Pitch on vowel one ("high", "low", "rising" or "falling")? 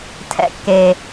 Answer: high